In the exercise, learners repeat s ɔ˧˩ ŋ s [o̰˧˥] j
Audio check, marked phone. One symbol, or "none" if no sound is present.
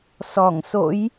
o̰˧˥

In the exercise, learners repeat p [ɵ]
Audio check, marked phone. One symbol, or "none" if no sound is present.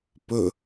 ɵ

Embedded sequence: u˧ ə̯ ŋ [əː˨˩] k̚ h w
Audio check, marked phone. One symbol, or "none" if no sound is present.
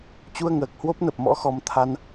əː˨˩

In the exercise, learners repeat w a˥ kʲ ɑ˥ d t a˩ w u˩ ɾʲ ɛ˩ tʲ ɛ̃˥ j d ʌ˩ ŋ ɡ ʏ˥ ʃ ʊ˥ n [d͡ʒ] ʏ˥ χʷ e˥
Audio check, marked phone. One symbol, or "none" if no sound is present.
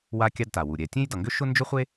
d͡ʒ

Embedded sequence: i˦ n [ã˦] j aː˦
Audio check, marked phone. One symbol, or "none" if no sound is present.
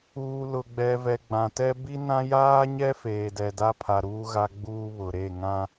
ã˦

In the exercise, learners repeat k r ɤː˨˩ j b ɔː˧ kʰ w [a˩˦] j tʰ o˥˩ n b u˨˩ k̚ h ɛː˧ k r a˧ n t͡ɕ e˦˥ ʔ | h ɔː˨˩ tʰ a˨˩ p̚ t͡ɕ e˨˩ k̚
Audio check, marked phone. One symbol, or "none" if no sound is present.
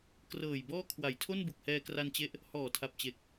a˩˦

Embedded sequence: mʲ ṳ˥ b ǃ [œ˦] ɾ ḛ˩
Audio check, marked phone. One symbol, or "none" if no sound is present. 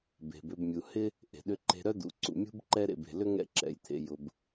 ɛ˦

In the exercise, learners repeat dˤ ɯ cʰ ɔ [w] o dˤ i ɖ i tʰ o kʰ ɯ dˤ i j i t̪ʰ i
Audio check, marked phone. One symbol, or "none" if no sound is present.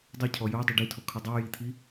j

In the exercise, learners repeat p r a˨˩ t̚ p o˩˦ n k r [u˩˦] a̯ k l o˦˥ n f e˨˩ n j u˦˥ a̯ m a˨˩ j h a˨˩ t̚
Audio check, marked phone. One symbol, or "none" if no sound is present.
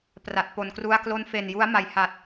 u˧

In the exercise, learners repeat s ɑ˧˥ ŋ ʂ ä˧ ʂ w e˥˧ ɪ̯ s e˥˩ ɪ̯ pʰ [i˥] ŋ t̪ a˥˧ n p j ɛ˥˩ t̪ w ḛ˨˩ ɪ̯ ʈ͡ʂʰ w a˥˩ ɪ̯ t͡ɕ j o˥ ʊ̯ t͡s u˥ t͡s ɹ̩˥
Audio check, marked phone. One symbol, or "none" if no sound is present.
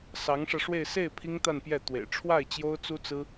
i˥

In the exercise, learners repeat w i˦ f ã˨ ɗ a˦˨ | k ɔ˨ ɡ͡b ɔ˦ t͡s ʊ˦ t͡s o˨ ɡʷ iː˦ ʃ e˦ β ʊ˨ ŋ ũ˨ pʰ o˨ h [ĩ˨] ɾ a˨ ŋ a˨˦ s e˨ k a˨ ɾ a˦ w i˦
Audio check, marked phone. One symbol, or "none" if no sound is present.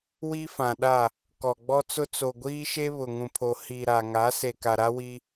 i˨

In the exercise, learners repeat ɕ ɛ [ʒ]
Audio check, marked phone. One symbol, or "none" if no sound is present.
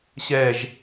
ʒ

